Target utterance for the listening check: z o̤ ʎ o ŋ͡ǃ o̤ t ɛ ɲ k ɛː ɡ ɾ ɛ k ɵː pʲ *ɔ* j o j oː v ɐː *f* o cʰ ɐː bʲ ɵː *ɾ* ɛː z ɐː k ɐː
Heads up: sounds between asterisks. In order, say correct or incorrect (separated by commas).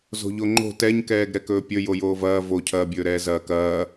incorrect, incorrect, correct